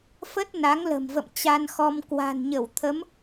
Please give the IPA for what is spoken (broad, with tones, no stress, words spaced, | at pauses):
fə˦˥t̚ na˨˦ŋlə̤˨˩mvə̰˧˨m t͡ɕa˧nxɔ˧m kwa̤˨˩nɲə˧˩wt̪ʰə˨˦m